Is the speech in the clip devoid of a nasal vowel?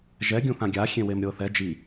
no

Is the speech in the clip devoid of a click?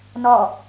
yes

